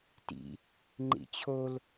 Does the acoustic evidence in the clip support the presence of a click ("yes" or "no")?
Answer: yes